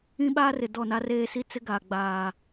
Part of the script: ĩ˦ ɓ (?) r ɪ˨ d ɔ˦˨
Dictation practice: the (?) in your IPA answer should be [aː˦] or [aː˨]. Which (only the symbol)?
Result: aː˦